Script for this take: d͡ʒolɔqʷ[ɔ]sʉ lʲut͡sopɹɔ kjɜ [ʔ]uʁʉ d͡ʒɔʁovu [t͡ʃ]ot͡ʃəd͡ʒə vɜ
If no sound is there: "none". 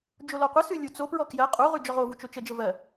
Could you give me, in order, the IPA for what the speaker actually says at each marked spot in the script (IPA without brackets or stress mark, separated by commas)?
ə, qʼ, t͡ʃ